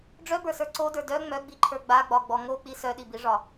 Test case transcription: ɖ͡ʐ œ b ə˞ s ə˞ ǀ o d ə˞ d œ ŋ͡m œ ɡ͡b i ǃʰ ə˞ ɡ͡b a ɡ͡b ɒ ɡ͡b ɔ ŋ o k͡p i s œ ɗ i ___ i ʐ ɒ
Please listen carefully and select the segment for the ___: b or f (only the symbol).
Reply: b